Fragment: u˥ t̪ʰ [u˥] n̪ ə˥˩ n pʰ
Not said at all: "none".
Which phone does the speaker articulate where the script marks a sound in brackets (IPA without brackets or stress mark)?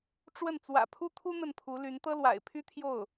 u˥